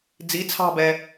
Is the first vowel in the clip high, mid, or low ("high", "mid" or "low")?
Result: high